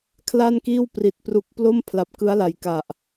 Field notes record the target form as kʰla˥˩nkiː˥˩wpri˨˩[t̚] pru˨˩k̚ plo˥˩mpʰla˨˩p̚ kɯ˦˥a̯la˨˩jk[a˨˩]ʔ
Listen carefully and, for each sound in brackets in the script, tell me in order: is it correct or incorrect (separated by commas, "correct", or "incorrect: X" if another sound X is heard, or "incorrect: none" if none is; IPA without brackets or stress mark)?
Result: correct, correct